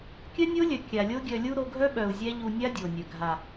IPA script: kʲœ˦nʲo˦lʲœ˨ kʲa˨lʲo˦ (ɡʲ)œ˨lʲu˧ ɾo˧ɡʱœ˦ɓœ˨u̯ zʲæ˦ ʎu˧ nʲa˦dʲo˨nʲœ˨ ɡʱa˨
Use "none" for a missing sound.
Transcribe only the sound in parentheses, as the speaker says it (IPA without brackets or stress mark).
ɡʲ